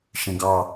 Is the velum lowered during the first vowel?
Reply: yes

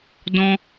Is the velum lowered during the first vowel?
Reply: yes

